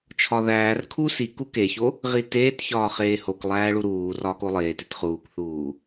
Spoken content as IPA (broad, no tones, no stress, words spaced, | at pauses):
t͡ʃʰɒðæːrkʰu si kukeço | ʁiteːtçɒː χeːhoklˠæː ɭuɾuːrɒːk olˠeːtit χuːkθuː